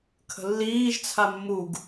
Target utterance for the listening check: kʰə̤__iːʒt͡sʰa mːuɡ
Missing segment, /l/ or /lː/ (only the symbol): lː